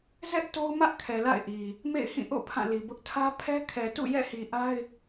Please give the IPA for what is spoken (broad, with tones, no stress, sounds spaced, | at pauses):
z ɛ˦ ʔ t o˦ ʊ̯ m ä˦ ʔ kʰ ɛ˨ l a̰˦˨ ɪ̯ ʔ i˨ | m ḛ˦˨ ɪ̯ h ĩ˦˨ ʔ o̰˦˨ pʰ ã˦˨ l i˨ b ʊ˦ ʔ tʰ ä˦ pʰ ɛ˦ kʰ ɛ˨ t ṵ˦˨ j ɛ̰˦˨ h i˨ ʔ a˦ ɪ̯